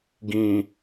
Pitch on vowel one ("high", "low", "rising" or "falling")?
low